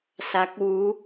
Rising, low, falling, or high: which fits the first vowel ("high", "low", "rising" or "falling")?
rising